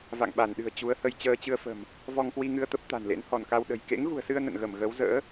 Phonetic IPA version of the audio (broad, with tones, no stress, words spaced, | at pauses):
va̰˧˨ŋɓa˧˩nɗɨ̤˨˩ə̯ t͡ɕu˨˦ə̯hə˧j t͡ɕəː˧t͡ɕɨ˧ə̯fə̤˨˩m | vɔ˧ŋkwi˧ŋɨ˧ə̯t̪ə˦˥p̚ t̪a̤˨˩nlḛ˧˥n hɔ˧˩nka˧wɗə̤˨˩j kḛ˧˥ŋɣṳ˨˩ə̯sɨ˧ə̯ nə̰˧˨nɣə˧˩m ɣə˨˦w zə̰ː˧˥